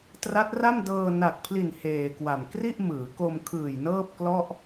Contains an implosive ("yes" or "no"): no